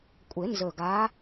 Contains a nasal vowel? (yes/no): no